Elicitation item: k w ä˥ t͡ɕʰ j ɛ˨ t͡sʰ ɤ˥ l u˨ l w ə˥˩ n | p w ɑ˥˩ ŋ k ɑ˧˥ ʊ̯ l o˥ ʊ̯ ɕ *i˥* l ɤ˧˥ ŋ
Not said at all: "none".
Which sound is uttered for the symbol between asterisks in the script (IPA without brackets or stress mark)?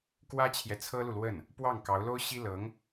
i˥